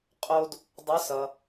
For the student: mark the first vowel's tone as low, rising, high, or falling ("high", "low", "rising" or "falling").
high